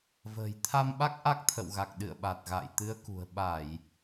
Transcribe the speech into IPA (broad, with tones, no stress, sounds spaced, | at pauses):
v ə̤ː˨˩ j t̪ʰ a˧ m ɓ a˦˥ k̚ ʔ a˦˥ k̚ t̪ʰ ə̰˧˨ w ɣ a˨˩ k̚ ɗ ɨ̰˧˨ ə̯ ɓ a˨˩ t̚ ɣ a̰ː˧˨ j t̪ ɨ˨˦ ə̯ k ṳ˨˩ ə̯ ɓ a˧˩˨ j